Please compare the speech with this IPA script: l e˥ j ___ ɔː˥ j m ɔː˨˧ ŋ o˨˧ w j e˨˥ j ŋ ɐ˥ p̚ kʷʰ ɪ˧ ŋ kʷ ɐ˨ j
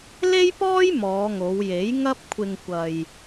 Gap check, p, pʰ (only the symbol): p